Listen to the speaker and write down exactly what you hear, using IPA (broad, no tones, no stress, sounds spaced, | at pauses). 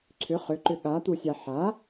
ǀʰ ʏ χ ʏ ǃ ʏ ɠ a t̪ u sʲ a ħ a